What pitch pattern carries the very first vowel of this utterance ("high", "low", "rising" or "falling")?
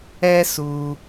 high